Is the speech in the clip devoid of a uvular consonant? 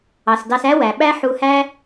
yes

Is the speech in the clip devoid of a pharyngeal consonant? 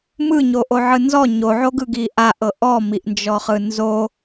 no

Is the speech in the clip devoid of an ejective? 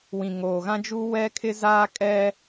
no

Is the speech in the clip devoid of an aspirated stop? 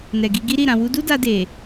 yes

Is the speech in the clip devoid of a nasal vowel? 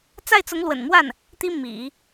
yes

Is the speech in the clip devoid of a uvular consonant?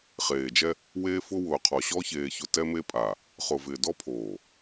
no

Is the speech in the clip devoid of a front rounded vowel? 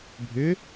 no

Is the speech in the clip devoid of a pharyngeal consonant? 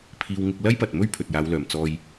yes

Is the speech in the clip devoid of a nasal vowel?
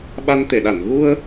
yes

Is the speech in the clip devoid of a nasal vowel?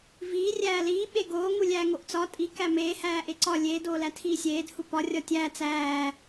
yes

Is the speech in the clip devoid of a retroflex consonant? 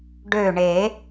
no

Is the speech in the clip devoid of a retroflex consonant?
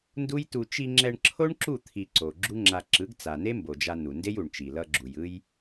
no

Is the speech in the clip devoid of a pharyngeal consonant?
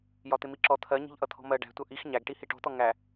yes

